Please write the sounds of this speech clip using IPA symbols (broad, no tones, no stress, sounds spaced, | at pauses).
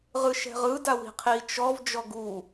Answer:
ʁ ɯ ʃ ɛ̤ ʁ ɯ d a w i̤ qʰ i t͡ʃ ɔ v d͡ʒ ɔ ɡ u